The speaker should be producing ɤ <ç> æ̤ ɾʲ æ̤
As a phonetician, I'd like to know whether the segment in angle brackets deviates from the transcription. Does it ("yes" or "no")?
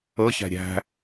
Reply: no